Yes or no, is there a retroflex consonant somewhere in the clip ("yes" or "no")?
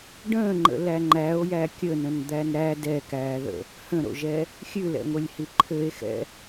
yes